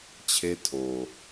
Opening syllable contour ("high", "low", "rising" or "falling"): high